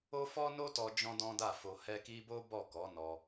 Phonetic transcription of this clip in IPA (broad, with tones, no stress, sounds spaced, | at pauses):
o˦ f ɔ˦ n o˦ t ɔ˧ d͡ʒ ɔ̃˦ d ɔ̃˦ d a˦˨ f o˧ h ɛ˧ k i˧ b o˦ b ɔ˦˨ k ɔ˨˦ n ɔ˧